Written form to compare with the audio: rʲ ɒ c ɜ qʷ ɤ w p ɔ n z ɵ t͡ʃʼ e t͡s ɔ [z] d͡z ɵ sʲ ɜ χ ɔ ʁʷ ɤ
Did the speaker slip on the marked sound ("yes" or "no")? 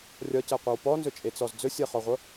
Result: no